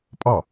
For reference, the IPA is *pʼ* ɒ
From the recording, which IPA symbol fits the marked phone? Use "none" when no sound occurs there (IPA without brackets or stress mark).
pʼ